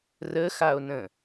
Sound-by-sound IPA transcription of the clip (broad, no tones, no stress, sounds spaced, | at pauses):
r ə x a o̯ n ə̃